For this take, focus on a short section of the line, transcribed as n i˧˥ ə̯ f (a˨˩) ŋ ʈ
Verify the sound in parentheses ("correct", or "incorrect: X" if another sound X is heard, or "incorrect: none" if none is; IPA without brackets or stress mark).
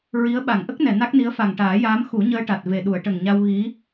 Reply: correct